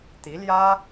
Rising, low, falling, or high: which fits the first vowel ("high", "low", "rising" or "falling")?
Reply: rising